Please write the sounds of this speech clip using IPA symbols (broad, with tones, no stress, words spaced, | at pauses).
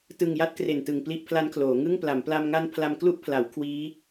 tɯ˨˩ŋ ja˥˩t̚kre˨˩ntɯ˨˩ŋ pli˥˩ʔpʰla˦˥nkʰloː˩˦ ŋɯ˥˩ŋpla˩˦m pla˧mŋa˦˥n pʰla˧m klu˦˥ʔpʰla˩˦w kʰwiː˦˥